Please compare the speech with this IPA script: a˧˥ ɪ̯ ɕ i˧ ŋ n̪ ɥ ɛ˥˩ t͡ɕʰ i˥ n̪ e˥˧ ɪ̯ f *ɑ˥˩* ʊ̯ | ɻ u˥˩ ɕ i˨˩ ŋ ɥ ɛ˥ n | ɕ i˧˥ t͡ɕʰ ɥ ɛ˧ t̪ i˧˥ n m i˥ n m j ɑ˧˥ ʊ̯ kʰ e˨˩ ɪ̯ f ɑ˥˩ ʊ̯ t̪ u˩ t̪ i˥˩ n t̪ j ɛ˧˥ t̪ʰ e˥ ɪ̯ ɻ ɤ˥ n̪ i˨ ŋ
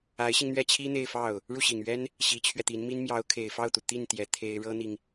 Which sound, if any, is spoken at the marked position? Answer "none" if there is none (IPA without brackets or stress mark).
ɑ˥˩